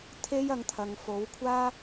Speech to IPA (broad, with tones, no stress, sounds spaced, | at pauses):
t̪ʰ e˥ j ɐ˧ ŋ t̪ʰ ɐ˨ ŋ f o˨˥ w kʷʰ aː˥